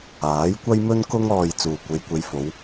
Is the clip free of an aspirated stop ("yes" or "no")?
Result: yes